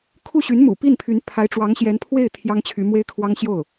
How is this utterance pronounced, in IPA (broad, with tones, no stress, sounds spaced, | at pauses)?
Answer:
kʰ u˥˩ ɕ y˧˥ n m ṵ˨˩ p i˥˩ n pʰ y˧˥ n pʰ a˧˥ ɪ̯ ʈ͡ʂ w ɑ˧˥ ŋ ɕ j ɛ˧˥ n pʰ w e˥˩ ɪ̯ t̪ʰ j ɑ˥ ŋ t͡ɕʰ y˧˥ m w e˥ ɪ̯ kʰ w ɑ˥ ŋ ɕ j o˥˩ ʊ̯